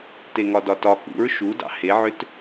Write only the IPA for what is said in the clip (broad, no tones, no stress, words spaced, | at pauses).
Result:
teŋɒdɒtɒ kṵɹ ʃudɑ̰ heʕʏt